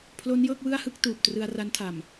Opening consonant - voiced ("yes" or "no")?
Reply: no